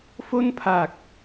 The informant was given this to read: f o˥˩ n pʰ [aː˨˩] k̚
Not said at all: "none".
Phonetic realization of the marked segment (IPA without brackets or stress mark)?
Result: aː˨˩